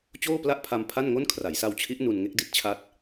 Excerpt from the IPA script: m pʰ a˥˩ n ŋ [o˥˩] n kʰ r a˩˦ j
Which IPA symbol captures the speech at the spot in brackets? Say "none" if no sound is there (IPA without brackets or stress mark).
o˥˩